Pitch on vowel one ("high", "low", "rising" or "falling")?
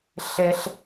high